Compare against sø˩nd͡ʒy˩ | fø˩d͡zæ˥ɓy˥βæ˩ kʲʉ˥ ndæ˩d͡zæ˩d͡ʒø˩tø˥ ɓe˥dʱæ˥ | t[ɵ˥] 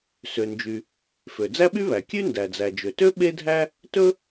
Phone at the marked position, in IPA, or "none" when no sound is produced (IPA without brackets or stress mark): ɵ˥